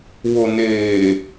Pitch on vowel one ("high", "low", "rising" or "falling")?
low